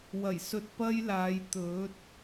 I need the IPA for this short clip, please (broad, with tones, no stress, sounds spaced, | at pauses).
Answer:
w ɐ˨˩ j s ɵ˨ t̚ p ɐ˥ j l aː˨˧ j t̪ ɵ˨˥ t̚